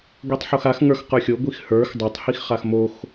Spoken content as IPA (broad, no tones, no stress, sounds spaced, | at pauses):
ɡʷ i tˤ ħ o x a x ŋ ə˞ x q ə˞ xʲ o ɡʷ i x h ə˞ x dˤ a tˤ h i x χ a x m o x